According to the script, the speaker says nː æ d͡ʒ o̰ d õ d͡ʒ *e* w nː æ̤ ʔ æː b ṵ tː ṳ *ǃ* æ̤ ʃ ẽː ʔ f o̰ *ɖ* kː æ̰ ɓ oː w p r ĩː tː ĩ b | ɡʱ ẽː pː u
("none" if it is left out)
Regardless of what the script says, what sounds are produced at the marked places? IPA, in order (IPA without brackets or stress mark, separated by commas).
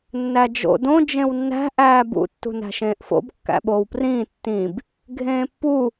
ẽ, n, b